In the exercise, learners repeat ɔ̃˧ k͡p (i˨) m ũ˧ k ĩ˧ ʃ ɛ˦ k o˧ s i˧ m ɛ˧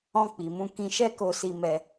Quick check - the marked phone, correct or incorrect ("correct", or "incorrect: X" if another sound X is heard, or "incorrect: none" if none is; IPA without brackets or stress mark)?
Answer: correct